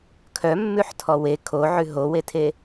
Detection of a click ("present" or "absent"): absent